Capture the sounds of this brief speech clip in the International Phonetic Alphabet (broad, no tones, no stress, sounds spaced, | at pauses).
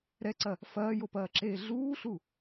ɾ ɛ ǀ ɐ | f ɐː j o p ɐː ǁ eː ɮ uː ɬ u